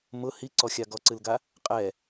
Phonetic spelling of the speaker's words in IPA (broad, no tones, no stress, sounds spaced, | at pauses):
m ʊ h i ǀ ɔ xʲ a ɡ ɔ ǀ ɨ l ɡ a | qʼ ɛ